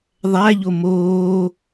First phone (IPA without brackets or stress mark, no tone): ðˤ